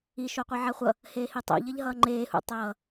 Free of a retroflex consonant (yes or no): yes